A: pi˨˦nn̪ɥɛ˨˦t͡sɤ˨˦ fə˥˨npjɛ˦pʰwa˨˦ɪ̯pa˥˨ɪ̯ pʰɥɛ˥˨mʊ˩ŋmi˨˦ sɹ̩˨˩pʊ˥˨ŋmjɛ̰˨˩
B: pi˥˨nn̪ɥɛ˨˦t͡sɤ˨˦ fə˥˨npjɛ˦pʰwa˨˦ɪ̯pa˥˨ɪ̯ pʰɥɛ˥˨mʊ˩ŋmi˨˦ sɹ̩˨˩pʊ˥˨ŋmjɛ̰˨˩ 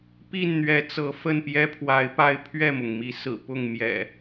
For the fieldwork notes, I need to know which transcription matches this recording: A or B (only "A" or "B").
B